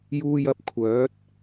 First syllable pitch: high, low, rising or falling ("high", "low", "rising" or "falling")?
high